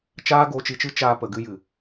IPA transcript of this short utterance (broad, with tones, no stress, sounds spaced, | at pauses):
t͡ʃ aː˦ ɡ o˧ t͡ʃ i˧ t͡ʃ ɨ˦ t͡ʃ aː˧ p ə˨ ɡ ɨ˧ j ɨ˨